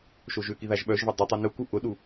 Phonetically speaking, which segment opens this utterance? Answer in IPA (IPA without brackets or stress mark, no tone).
ʃ